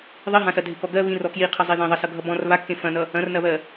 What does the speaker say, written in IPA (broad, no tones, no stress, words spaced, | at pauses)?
ðˤiɦãsɐ dʱɪkɔɡɜ βĩr ɔkjiqʰʌ zˤiðẽðˤɐ sʌɡʱʌbɔ̃r βakːẽ fɐ̃nʌ | ɐ̃rnɐβɜ